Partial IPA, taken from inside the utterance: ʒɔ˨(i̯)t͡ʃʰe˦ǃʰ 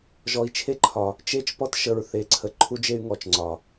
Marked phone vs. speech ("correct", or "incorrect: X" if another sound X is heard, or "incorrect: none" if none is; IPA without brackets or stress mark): correct